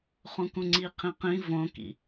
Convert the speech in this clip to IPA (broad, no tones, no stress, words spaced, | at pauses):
χũkũŋ͡ǀiqʰĩ qĩ võkḭ